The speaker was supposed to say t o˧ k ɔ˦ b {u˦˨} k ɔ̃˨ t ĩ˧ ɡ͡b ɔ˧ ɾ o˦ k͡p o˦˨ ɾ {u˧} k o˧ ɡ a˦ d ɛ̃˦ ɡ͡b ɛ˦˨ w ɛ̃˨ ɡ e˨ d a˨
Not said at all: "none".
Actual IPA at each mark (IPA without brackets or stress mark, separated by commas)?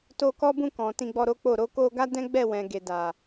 ũ˦˨, o˧